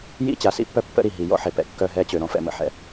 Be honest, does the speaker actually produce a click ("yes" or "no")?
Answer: no